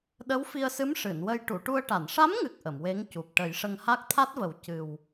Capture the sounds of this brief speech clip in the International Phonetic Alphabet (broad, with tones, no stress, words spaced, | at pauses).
ɗə˧˥wfi˧ə̯sɨ˧˥m ʂɨ˨˩˨nwə˧j ʈu˨˩˨ʈu˧ə̯ʈa˨˩˨n ʂa˧˥mŋɨ˨˩k̚ ʔə˨˩˨mwe˧˥ŋcu˨˩p̚ ʈə˨˩˦jʂə˧ŋha˦˥k̚ t̪ʰa˦˥t̚və˨˩˦w cɨ˨˩w